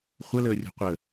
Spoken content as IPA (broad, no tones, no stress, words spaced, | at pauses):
χʷələːrʲo̤ qʷə